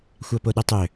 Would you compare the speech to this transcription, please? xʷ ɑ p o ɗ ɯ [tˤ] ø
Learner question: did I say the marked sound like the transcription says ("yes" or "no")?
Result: yes